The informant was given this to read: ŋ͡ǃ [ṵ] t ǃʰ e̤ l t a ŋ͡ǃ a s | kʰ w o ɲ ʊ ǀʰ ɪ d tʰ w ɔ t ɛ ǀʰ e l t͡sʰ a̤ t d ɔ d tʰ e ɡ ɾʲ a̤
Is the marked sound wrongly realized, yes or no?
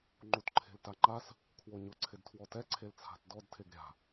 yes